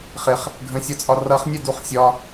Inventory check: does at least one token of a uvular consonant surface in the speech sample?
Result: yes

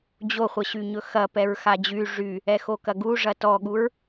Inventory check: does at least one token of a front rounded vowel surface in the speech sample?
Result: yes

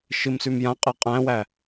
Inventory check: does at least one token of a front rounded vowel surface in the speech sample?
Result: no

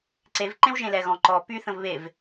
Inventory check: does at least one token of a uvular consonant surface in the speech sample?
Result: no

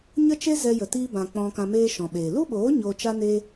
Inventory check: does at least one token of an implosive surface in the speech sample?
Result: yes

